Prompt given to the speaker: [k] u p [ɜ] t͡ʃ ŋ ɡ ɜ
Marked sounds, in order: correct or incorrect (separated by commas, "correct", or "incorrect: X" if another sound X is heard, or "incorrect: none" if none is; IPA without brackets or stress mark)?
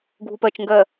incorrect: ɡʱ, correct